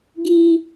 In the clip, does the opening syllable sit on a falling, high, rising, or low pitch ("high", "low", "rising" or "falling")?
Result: high